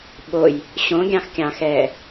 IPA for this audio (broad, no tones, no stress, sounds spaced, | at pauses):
ɓ o j | ɕ õ ɡʲ ɑ̃ x kʲ ɑ̃ x ɛː